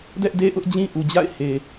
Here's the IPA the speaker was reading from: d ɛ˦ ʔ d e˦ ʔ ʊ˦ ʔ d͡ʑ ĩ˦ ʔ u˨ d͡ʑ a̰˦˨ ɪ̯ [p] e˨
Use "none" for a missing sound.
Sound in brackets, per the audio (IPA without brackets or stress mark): h